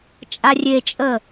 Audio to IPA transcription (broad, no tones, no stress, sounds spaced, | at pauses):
t͡ʃʼ a rʲ e t͡ʃʼ ə